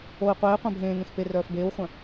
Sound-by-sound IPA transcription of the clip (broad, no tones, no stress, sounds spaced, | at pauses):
o i̯ qʷ eː qʷ œ̃ bʱ ẽː ŋ ẽ x p e r œː f b eː w χʷ œ̃